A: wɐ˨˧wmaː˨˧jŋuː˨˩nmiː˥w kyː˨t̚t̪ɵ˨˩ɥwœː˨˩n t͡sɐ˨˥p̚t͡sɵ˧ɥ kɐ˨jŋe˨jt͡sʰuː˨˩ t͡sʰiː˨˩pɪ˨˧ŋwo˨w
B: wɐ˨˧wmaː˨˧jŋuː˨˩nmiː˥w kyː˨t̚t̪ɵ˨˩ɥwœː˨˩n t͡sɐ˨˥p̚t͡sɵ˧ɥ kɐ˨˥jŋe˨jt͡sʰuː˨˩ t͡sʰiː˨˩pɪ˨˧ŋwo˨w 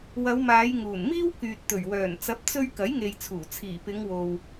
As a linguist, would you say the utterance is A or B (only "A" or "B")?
B